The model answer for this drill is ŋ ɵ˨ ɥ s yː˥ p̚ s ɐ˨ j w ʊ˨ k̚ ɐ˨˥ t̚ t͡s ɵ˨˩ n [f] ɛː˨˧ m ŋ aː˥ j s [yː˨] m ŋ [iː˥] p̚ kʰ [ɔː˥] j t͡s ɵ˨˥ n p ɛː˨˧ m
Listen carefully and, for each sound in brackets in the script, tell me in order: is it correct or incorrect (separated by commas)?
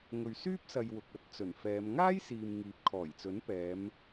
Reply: correct, incorrect, incorrect, incorrect